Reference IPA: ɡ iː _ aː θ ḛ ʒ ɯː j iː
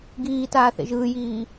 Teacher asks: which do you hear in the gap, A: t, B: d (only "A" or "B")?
A